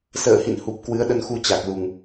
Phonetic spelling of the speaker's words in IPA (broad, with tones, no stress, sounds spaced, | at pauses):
s ə̰ː˧˨ h ḭ˧˨ n h u˨˩ p̚ k w ɨ˨˦ ə̯ ɗ ə˧ n x u˧ t͡ɕ a˨˩ k̚ l u˨˩ ŋ